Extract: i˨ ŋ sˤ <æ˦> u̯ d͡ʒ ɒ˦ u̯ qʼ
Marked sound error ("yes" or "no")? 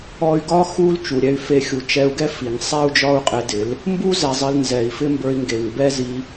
yes